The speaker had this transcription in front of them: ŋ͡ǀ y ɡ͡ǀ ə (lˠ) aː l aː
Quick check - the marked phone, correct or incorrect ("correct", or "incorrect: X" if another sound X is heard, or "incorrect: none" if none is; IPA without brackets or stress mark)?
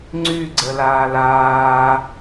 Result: incorrect: l